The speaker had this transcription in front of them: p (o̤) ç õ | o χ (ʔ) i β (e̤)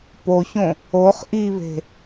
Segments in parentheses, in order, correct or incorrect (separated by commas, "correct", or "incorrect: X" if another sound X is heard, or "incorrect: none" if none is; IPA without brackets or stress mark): incorrect: o, correct, correct